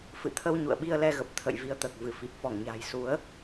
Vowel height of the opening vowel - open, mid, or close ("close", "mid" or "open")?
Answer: close